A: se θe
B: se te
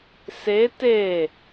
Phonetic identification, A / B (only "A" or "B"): B